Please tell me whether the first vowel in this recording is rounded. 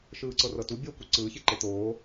no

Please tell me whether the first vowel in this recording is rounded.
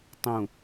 yes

